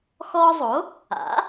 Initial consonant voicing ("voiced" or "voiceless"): voiceless